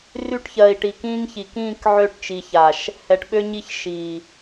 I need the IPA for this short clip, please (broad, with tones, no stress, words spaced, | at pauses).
ry˦ʈçɜː˨i̯ʈi˨ kĩː˦ŋ çi˨k ĩː˦˨k ʕø˦˨ʈt͡ʃi˨ça˨ʃ | hɛ˨ʈɓø˦ɲi˦˨ç ʃiː˨